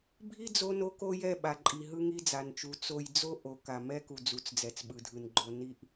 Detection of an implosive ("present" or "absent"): present